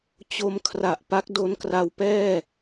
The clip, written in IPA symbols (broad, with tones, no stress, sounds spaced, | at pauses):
t͡ɕ o˧ m kʰ r a˨˩ ʔ p a˦˥ k̚ d o˦˥ n k r a˧ w p ɛː˥˩